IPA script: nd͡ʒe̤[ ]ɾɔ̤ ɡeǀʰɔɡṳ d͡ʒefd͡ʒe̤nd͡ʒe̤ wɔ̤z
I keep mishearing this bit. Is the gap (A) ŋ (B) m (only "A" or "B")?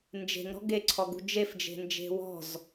A